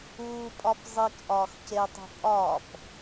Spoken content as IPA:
uː pʼ ɒ p zˤ i k ʔ ɒː x c e tˤ i̤ pʼ ɒ p

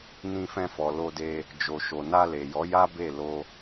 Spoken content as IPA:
n ĩ˧ f ɛ̃˧ f ɔ˨ l o˧ d e˧ | d͡ʒ o˨ ʃ o˨ n a˧ l e˨ j ɔ˨˦ j a˦ b e˦˨ l o˧

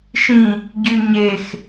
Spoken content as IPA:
ʃ ĩ | ɟ y ɲ e x

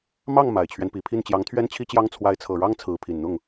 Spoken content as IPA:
m ɑ˥˩ ŋ m a˨˩ ɪ̯ t͡ɕʰ ɥ ɛ˦ n p i˨˩ pʰ i˥˩ n t͡ɕ j ɑ˧˥ ŋ t̪ʰ ɥ ɛ˥ n t͡ɕʰ i˥ t͡ɕ j ɑ˥ ŋ t͡sʰ w a˧˥ ɪ̯ t͡sʰ ɤ˨˩ ɻ ɑ˥ ŋ t͡sʰ ɹ̩˧˥ pʰ i˨˩ n n̪ ʊ˥˩ ŋ

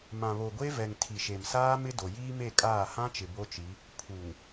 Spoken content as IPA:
m ã˨ β o˨ ɡʷ e˦ v ɛ˨ ŋ tʰ i˨ ʃ e˨ m s aː˦ m ɪ˦ d o˨ j iː˦ m e˦˨ kʼ aː˦˨ h ã˦ t͡ʃ ɪ˨ b o˦ t͡ʃ i˨˦ | pʰ u˨ ŋ

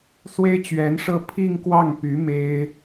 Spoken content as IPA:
s w e˥ ɪ̯ t͡ɕ ɥ ɛ˧˥ n ʂ ɤ˥˧ pʰ i˥˧ ŋ k w ɑ˥˩ ŋ p y˧˥ m e˥ ɪ̯

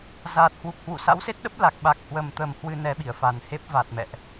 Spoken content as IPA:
z aː˨˩ t̚ h w u˨˩ k̚ h w ṵ˧˨ s a̰˧˥ w s e˦˥ t̚ ɗ ə˦˥ p̚ l a˨˩ k̚ ɓ a˨˩ k̚ h w ə˨˩ m t̪ ə˨˩ m h w ɨ˧ n ɛ˨˦ ɓ i˧˩ ə̯ f a˨˩ n h e˦˥ p̚ v a˨˩ t̚ m ɛ̰˧˨ ʔ

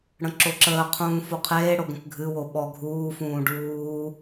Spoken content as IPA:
ɽ ə̃ ǁ o ǁ əː qʰ ũː f o qʰ eː ɽ o ɡ ə̃ k ɡʱ ɨ w o ɓ ɔ ɡʱ uː f ũː ɖ uː

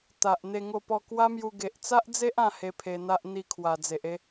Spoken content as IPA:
t̪ a˨ ʔ n̪ e˥˧ ŋ o˥˧ p ɔ˥˧ k w a˦ m j u˧ ɡ e˨ ʔ t͡s a˦ ʔ d͡z e˦ ʔ ã˥˧ h e˧ pʰ e˧ n̪ a˦ ʔ n̪ i˥˧ kʰ w a˨˩ d͡z e˨ ʔ e˦

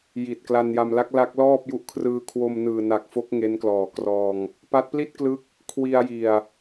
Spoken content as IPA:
j i˨˩ t̚ k l a˧ n j a˧ m l a˦˥ k̚ l a˦˥ k̚ l ɔː˥˩ p̚ j u˦˥ ʔ kʰ r ɯː˧ kʰ w o˧ m n ɯː˨˩ n a˨˩ k̚ f o˦˥ k̚ ŋ e˦˥ n k l ɔː˨˩ k r ɔː˧ ŋ | p a˦˥ t̚ p l i˥˩ t̚ k l ɯ˦˥ k̚ | kʰ w i˧ a̯ j i˨˩ a̯

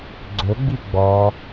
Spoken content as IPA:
ɡ͡ǀ ɵ ɡ͡b i ɡ͡b ɔ

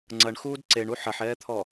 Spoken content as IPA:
ŋ͡ǀ ɐ ɳ x uː d ǀ e ɳ u ħ ɐ ħ ɛː t̪ʰ ɔ

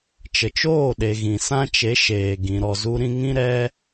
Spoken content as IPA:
t͡ʃ ə˨ t͡ʃ oː˦˨ ɗ e˨ ɣ ĩ˨ s ã˦ t͡ʃ e˨˦ ʃ eː˨ ɡ ĩ˨ ɾ ɔ˨ z u˧ ɾ ĩ˧ ŋ ĩ˦ ɾ ɛ˦

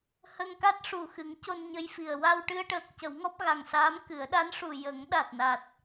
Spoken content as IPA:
h ə˧ ŋ k a˦˥ t̚ ʂ u˨˩ x ɨ˨˩˦ ŋ c o˧ n ɲ ə˧ j f i˨˩ ə̯ w a˧ w ʈ ɨ˧ ə̯ ʈ əː˨˩ k̚ c ə˨˩˦ w ŋ ɔ˦˥ p̚ ɣ a˨˩ ŋ s aː˧˥ m k ɨ˨˩˦ ə̯ ɗ a˧˥ n ʂ u˨˩ j ə˨˩˦ ŋ ɗ a˨˩ t̚ n a˨˩ t̚

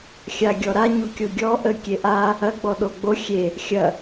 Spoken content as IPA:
xʲ a ɡʲ ɔ ɾ a ɲ u kʲ o ɡʲ ɔ ʔ ə kʲ e ʔ a | ɐ ɡ͡b ɔ ɗ o ɡ͡b o xʲ e | xʲ ɐ

